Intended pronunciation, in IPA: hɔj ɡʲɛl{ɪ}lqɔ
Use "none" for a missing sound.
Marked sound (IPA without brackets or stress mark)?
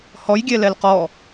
ɛ